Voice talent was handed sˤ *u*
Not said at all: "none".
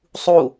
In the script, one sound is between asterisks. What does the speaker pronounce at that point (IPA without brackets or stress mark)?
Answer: u